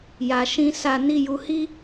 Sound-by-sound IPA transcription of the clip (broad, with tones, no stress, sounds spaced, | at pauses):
j a˨ ʃ ĩ˧ s a˨ n i˨ j u˨ h i˧